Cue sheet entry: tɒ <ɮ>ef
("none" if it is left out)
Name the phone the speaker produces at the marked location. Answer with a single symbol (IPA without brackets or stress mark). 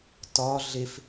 ɮ